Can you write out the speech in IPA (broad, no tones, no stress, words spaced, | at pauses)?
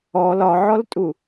ɔ lɒʕɔltʼu